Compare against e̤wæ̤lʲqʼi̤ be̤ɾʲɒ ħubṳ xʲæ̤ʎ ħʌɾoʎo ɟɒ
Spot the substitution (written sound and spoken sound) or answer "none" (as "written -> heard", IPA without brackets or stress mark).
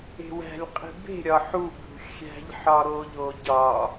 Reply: ʌ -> ɒ